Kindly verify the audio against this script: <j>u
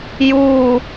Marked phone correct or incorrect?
correct